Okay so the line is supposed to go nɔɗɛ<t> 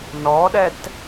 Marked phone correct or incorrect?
correct